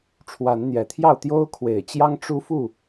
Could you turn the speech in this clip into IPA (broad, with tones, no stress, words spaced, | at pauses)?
ʈ͡ʂʰwa˨˦nn̪jɛ˨˩t̪ʰjɑ˥˨ʊ̯ t̪jo˦ʊ̯kʰwe˨˩ɪ̯t͡ɕjɑ˦ŋ ʈ͡ʂu˦fu˥˨